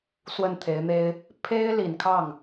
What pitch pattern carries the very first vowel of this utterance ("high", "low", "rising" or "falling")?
falling